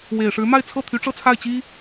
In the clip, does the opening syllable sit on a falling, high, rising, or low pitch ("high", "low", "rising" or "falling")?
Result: low